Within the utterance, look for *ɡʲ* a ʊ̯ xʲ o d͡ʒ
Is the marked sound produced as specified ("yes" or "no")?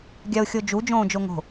yes